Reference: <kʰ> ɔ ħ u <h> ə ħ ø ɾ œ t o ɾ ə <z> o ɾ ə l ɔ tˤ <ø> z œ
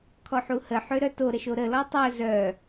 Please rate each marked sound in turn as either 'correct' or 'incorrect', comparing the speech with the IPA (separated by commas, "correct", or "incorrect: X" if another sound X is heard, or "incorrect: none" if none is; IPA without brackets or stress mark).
correct, correct, incorrect: ʃ, incorrect: œ